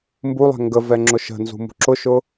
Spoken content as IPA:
mbulˠɛ̤ ŋɡəvɛ ŋ͡ǁʊʃə̤nzṳ mṳǁʊʃʊ

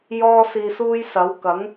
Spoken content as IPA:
jɔː˥siː˧suː˥jsɐ˨˥w kɐ˨˥ŋ

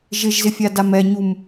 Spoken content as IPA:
ʒɪʒzɪfʲa damɛɲum

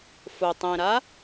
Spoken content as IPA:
fʊ tˤẽɾa

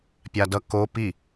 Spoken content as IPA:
pʲadʌ ko pi

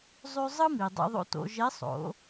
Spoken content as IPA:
zˤʉ˧ zˤɯ˥mi˩ dˤḛ˧ðˤo̰˧to̰˩˧ ʒe˧˥sˤo̰˩˧

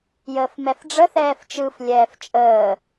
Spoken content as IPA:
jəːfmɛfɖ͡ʐə θɛːft͡ʃɯf lʲɛːft͡ʃʼəː

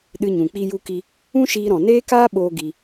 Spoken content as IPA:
ɗɨ˧ɲũ˨ k͡pi˦ju˦ki˦ | ũ˦ʃiː˧ ɾɔ̃˨neː˦kaː˦ɓoː˧ ɡi˧

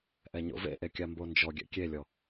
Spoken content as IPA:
ʔɛɲo̰vḛʔe kʲambond͡ʒɔɡʲɛ̰ kʲelʲɔ

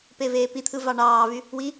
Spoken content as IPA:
peveːpit̪ʰɯ vɑɳɑːvy | wi

